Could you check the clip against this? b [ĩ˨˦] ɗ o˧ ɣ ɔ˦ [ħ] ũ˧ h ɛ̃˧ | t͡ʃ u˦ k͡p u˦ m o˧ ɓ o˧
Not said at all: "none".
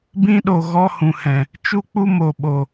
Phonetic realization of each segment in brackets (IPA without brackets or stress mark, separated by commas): ĩ˦, h